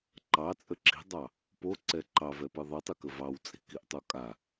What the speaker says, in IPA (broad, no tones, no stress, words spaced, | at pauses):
ǃɑt͡sʼə ǁi̤dˤɑ | poǀɛ ǃɑvɛpɯ ðˤətˤɯkə vɑwt͡sʼi̤kiʔtˤo kʼa